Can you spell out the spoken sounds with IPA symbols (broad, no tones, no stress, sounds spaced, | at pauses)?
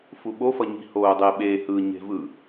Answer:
f u ɓ o f ʌ ɲ i̤ h oː dˤ e ɓ e h ɯ ɲ e̤ v ɯ